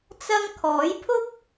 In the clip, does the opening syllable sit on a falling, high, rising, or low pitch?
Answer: high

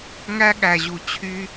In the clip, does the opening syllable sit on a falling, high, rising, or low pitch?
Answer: high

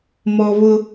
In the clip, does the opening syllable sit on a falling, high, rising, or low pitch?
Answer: high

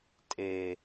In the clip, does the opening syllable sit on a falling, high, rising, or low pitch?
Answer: high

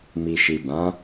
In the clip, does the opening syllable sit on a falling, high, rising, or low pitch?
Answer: low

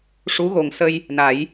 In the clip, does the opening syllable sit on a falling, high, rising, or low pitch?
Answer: rising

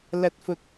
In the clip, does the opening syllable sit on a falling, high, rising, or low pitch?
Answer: low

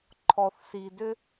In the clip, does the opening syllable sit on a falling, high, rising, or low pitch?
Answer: low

